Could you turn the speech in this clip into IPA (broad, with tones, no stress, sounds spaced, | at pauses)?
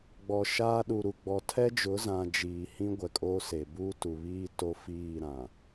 ɡ͡b ɔ˨ ʃ aː˦ ɗ u˨ ɾ u˨ ɡ͡b ɔ˨ tʰ ɛ˦ d͡ʒ ʊ˨˦ z ã˨ d͡ʒ iː˨ h ĩ˦ ɡʷ ɛ˨ kʼ oː˦ s eː˨ b uː˦ t u˨ β iː˦ t o˦ f iː˦˨ ɾ ã˨